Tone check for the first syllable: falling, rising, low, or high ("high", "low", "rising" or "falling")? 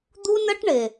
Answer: high